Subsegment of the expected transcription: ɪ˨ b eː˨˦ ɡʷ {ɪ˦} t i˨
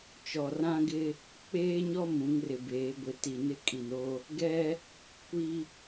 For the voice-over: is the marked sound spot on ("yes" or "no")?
no